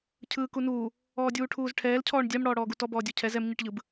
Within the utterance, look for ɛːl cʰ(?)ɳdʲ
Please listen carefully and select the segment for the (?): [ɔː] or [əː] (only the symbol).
ɔː